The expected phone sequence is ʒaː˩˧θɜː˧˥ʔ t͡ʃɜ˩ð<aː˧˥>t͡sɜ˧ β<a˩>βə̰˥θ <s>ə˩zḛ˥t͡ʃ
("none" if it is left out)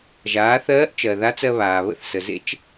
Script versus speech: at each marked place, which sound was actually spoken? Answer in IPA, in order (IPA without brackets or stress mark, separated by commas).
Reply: a˧˥, aː˩, s